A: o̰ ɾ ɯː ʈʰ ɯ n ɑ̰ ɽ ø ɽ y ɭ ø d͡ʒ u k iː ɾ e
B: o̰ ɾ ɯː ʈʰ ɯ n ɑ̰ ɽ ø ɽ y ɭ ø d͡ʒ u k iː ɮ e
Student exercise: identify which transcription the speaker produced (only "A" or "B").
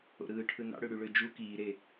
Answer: A